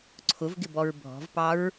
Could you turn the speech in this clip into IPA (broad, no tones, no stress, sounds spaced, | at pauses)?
ǀʰ ʊ v ɡ ɪ b ɔ ɹ bʱ ɔ̤ v p ɑ ɹ